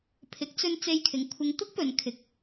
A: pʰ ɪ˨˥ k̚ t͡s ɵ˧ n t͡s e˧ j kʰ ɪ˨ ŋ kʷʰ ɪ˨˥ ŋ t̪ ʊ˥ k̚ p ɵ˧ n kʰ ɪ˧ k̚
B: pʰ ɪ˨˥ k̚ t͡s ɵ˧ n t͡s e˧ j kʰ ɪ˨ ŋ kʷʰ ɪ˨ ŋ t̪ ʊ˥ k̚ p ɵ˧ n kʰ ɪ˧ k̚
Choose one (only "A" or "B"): B